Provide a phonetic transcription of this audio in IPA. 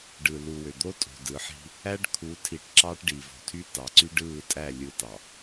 ɖɯ˨lu˨wø˨d̪o˦ tʼo̤˨dɯ˨˦ħi̤˦ | æ˦ɖkʰu˨˦tʰi˨ʈ ǁɑː˦ʈɖi˨vo̤˨tʰy˦ tɑ˨ǀy˦ɖɯː˦˨tʼæ˦˨ lʲɯ˦tɑ˨

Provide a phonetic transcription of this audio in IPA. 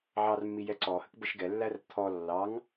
ʕɑrmːi jɛǀɔhək bəʃɡɛlːær t̪ʰɔ lːɑŋ

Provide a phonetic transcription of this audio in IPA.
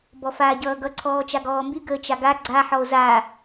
bɔfaːɟʌːɡʌ ǀʰɔːt͡ʃaɡɔːmby ɡəːt͡ʃaɡa ɡ͡ǀa ħɔo̯za

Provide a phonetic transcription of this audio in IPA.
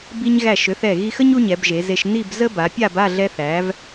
bi˧ɲ ɣæ˧˩ʃø˩˧θɛ˧˩ ɣi˧xə˥ɲ u˥ɲɛ˩˧bʒe˩˧ze˧ʃ ni˥˧b zə˥ba˩˧pʲa˥˧b a˥˧ɮɛ˧θæ˩˧v

